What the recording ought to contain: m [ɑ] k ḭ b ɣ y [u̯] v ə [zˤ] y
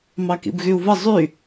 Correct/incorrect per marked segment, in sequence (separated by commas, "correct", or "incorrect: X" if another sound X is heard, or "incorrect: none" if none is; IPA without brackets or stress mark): correct, correct, correct